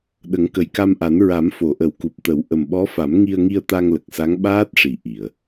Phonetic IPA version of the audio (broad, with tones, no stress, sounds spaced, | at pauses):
ɗ ə˨˩˦ ŋ k ə˨˩ j k a˧ m ʔ a˨˩˦ n ɹ a˨˩˦ m f o˨˩˨ ʔ ə˨˩˦ w k u˨˩ p̚ t̪ ə˨˩˦ w ʔ ə˨˩ m ɓ ɔ˧˥ f a˨˩˦ m ŋ i˧ ə̯ ŋ i˧ ə̯ t̪ a˧ ŋ l ə˨˩ k̚ s a˧˥ ŋ ɓ aː˦˥ t̚ ʂ i˨˩˨ ʔ i˨˩˨ ə̯